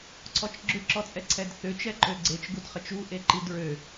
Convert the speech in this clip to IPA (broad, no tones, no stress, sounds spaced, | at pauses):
ǀʰ ɔ t͡ʃ ɡ͡ǁ ʏ ǁ ɔ t͡sʼ ɛ ǀʰ ɛ d θ ʏ t͡ʃ ɛ ǃ ø ɡ͡ǀ e t͡ʃ ɡ u d χ ə t͡ʃ u ʔ e ǃ i d ɹ ø